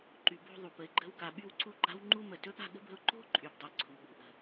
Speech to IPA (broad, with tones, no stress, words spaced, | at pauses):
ǃy˧bo̤˥˧ ðˤu˧˩pə˧ɪ̯ɡ͡ǃə̤˥˧wka˧ ɓy˥˧wǀu˥˧ɡ͡ǃa̤˥wŋ͡ǃu˥ mə˧˩tɵ˥ɠa̤˥˧ɠə̤˥b ə̤˧ʊ̯ǃo̤˥ ǃʼy˧bdˤɛ˧˩ ǀʰu˩˧ɠṳ˩˧ ʔə̤˧˩